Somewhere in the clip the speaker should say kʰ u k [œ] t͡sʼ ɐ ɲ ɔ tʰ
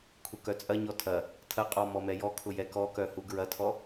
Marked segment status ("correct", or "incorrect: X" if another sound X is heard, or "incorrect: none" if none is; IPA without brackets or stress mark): correct